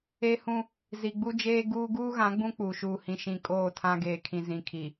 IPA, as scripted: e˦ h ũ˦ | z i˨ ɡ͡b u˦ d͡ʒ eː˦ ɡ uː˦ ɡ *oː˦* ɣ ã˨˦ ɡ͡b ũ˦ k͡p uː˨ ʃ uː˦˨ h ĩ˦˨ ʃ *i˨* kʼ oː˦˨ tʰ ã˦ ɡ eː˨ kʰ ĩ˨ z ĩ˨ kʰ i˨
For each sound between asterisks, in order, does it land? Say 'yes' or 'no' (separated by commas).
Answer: no, no